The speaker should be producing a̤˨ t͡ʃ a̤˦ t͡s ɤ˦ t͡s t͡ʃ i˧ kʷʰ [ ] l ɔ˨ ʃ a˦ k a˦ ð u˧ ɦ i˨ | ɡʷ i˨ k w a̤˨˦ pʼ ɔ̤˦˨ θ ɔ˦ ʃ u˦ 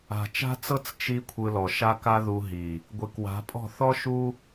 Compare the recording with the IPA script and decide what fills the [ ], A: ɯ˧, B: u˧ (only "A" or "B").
A